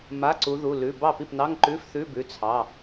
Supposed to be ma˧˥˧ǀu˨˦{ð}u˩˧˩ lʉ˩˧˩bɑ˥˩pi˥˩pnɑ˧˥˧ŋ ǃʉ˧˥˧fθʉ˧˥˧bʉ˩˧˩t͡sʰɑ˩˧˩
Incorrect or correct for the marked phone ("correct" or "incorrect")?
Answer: correct